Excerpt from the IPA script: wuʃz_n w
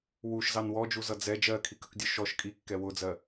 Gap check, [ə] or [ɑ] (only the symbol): ɑ